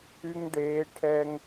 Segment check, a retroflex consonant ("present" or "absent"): present